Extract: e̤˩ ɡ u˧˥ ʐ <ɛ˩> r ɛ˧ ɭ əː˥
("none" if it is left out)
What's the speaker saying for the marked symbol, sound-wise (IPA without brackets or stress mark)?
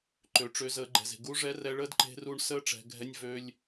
ɛ˧˥